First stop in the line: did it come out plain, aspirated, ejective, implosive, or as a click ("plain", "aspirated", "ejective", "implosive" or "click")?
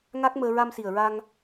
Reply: plain